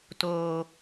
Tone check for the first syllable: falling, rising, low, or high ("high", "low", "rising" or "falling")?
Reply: low